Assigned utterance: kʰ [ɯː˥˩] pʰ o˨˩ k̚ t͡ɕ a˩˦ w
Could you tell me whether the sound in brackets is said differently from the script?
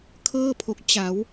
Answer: yes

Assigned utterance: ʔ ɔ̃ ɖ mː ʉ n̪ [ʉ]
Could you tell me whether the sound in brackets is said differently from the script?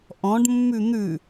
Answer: no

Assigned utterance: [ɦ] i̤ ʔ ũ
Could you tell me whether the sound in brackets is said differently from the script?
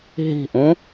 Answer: no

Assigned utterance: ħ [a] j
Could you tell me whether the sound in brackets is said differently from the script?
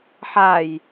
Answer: no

